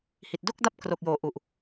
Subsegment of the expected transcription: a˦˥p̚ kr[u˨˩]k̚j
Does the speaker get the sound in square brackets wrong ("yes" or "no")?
yes